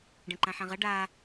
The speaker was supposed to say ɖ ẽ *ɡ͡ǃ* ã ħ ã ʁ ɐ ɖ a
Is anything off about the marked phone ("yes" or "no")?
yes